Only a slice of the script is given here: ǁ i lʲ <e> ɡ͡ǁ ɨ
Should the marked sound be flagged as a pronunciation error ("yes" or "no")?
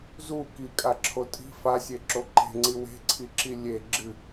no